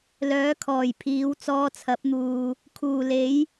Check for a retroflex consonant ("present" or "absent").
absent